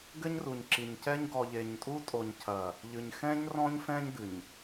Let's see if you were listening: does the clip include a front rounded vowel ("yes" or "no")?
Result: no